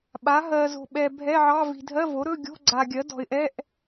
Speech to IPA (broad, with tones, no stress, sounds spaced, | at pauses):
ɓ a˩˥ ɦ ɜː˨ z o̤˨ ɓ ɛ˨ bʱ ɛ˧˥˧ ʕ ɑ˧˥˧ v i̤˨ dʱ ɜ˧˥˧ v o˩˥ ɾ ɵ˧˥˧ ɡʲ o̤˧˥˧ ɡ͡ǀ a˨ ɡʲ ɜ˩˥ d ɔ̤˨ ɪ̯ ʔ ɛ˧˥˧ ʔ